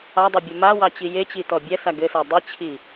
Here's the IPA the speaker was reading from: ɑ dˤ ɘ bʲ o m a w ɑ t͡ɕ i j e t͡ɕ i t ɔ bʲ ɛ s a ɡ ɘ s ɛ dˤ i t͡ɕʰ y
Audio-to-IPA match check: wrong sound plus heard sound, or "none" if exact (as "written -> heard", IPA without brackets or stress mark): y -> i